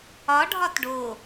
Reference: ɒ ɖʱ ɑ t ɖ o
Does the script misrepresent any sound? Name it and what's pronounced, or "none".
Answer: ɑ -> ɒ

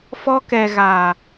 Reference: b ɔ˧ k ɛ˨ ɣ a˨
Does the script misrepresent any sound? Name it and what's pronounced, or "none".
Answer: b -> f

